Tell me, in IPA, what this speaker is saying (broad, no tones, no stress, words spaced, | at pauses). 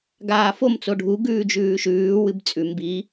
ɡaːfom t͡soɖʱu ɡʉːd͡ʒʉːʃʉː wɨbt͡sʼʉm bi